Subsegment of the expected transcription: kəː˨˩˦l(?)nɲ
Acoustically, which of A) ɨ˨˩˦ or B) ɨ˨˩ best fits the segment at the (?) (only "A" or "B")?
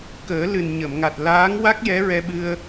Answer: B